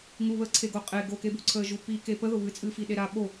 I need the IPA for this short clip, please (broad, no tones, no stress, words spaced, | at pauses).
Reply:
ŋuβəː ǀʰeɡoqʼe ɡokebuǀʰəː ʒupi kepəðʊ βɨt͡sʼɨːfi ɗeɾa ɓo